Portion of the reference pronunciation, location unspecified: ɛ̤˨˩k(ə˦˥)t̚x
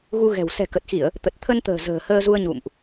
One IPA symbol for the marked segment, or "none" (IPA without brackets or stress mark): ə˨˩